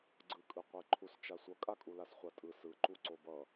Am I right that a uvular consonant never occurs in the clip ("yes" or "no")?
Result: no